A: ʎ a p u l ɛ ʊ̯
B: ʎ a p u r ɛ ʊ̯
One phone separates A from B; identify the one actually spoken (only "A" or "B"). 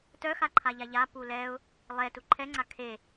A